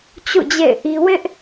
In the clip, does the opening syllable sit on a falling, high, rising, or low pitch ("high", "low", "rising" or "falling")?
falling